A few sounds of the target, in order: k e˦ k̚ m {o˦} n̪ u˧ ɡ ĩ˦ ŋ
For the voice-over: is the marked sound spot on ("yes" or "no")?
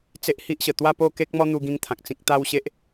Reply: no